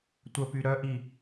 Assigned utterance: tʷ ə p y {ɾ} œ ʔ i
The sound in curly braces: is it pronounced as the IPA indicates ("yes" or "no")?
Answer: yes